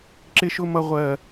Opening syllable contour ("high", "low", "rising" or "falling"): high